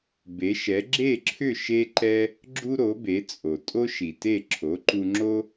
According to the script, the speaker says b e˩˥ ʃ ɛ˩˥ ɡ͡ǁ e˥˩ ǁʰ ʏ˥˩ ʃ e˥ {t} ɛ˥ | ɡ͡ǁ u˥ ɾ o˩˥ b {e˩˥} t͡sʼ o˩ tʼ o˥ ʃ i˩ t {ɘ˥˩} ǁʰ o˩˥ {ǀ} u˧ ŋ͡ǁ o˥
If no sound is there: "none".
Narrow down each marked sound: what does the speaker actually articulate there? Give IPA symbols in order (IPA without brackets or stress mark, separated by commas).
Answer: ǃ, e˩˥, e˥˩, ǃ